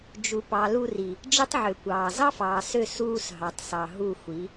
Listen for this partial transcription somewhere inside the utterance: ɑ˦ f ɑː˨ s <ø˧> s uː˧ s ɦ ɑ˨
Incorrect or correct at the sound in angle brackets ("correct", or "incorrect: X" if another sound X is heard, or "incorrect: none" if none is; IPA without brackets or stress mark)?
incorrect: ø˦˨